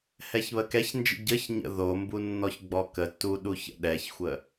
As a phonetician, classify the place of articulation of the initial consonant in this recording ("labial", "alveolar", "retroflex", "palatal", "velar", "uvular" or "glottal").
glottal